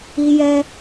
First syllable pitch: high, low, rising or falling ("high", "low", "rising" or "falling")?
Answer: high